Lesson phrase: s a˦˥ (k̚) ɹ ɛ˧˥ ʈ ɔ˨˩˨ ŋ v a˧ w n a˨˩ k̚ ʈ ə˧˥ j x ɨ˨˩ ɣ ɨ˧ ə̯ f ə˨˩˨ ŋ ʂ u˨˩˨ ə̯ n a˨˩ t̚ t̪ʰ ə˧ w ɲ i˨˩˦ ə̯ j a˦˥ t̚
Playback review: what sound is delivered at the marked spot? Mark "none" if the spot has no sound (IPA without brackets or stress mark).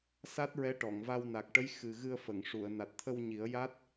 t̚